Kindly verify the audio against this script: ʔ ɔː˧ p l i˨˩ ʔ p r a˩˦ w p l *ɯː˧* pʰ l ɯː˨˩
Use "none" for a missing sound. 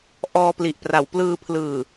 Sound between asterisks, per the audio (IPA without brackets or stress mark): ɯː˧